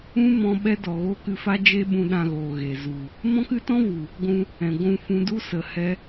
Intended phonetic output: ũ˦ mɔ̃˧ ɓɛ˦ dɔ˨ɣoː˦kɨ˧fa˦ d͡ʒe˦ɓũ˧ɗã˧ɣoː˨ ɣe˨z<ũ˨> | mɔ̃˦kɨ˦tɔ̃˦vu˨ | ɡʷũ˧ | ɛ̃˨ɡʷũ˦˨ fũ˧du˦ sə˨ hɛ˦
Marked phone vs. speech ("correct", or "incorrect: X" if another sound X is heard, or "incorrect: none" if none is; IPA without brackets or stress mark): incorrect: u˨